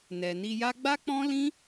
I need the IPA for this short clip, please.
n ɛ˨ n i˧ j a˦ ɡ͡b a˦ k͡p ɔ̃˦ l ĩ˦

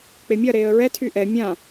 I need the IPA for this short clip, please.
k͡p e mʲ ɐ ɾ eː ə̯ ɹ ɛ tʰ y ʔ ɛ mʲ ã

